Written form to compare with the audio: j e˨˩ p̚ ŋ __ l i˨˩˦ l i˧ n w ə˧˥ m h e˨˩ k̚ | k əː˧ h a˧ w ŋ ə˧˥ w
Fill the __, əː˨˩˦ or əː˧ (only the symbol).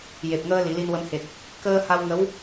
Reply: əː˧